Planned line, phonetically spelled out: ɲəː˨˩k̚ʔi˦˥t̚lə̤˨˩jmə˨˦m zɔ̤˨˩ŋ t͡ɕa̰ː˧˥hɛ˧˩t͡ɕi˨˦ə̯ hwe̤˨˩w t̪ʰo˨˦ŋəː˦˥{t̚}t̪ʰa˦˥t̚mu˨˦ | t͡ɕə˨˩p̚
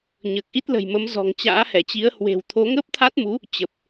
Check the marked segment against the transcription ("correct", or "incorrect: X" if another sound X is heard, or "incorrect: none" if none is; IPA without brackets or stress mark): incorrect: p̚